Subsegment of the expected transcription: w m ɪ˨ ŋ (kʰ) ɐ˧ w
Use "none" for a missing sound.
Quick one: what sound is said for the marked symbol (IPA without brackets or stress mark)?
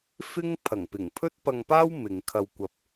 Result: kʰ